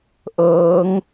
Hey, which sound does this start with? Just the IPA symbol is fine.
ʔ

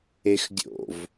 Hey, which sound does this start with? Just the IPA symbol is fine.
e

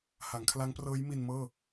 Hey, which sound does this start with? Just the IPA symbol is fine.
h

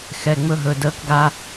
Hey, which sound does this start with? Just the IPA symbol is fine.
x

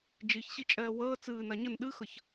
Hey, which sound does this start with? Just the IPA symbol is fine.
d͡ʒ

